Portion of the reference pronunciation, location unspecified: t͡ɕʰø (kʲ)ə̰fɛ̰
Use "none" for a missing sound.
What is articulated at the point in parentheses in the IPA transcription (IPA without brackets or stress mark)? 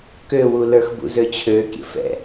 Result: kʲ